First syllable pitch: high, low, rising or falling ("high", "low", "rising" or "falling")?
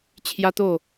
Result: high